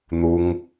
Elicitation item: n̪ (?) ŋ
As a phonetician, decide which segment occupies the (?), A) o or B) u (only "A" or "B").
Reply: B